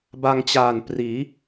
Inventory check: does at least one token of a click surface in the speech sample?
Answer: no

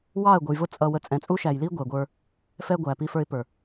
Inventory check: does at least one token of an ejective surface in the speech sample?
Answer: yes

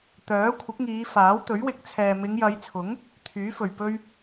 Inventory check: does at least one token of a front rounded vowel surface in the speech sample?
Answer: yes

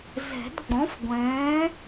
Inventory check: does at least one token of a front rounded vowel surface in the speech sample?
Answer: no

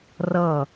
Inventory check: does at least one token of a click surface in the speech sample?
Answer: no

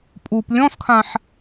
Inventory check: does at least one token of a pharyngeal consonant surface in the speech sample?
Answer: yes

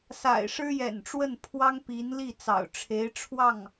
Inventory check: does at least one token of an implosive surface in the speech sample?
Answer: no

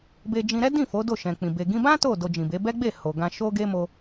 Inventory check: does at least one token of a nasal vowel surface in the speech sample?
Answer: yes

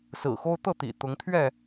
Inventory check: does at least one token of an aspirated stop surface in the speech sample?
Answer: yes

